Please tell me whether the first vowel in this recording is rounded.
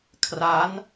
no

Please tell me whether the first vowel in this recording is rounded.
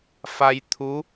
no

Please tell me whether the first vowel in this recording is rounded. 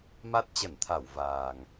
no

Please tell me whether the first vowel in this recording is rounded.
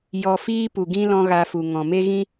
yes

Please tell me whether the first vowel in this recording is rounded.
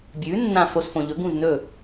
yes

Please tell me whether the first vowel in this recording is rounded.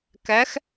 no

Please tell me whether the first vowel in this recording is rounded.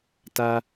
no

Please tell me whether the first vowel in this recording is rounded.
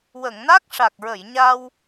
no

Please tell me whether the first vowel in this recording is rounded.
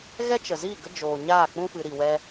no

